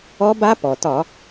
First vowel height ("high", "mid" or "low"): mid